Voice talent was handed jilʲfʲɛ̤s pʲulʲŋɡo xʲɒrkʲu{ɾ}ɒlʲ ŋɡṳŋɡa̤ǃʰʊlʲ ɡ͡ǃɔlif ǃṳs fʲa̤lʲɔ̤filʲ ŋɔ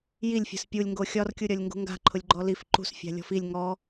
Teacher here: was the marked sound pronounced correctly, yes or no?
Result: no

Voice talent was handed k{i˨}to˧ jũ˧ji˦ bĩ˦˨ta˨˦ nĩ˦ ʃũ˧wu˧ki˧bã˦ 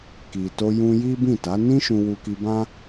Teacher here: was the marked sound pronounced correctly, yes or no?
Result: yes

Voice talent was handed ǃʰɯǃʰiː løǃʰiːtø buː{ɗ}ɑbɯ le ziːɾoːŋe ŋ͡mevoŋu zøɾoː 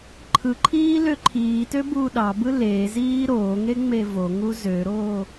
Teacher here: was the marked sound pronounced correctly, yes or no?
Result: yes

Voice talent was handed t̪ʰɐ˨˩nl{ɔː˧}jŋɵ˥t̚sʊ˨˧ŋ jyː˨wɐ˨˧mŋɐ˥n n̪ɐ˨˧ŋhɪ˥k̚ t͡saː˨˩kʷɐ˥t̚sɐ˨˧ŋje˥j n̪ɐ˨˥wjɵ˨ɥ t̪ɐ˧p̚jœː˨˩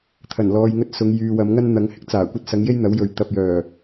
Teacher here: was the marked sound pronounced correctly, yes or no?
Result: yes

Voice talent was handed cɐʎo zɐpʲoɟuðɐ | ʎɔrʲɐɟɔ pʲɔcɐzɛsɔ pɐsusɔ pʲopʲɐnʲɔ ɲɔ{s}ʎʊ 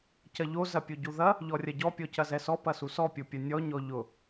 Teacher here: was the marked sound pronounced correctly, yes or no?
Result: no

